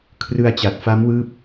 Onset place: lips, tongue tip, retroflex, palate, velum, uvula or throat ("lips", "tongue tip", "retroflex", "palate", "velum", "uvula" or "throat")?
velum